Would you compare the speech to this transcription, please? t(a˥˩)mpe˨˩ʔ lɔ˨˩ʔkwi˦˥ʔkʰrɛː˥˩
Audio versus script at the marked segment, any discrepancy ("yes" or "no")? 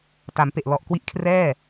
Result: yes